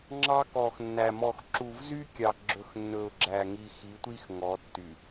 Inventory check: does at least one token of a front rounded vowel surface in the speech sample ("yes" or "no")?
yes